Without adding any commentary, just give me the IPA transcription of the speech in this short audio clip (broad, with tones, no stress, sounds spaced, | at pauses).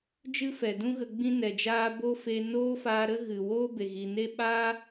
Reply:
d͡ʒ ɨ˦ f ɛ˨ d ũ˦ ɣ ə˧ ɡ͡b ĩ˦ n ɛ˨ d͡ʒ aː˦ b o˦ f e˧ n oː˦ f aː˧ ɾ ə˦ ɣ ɨ˨ w oː˦ b e˨ ɣ i˨ n e˦ ɓ aː˦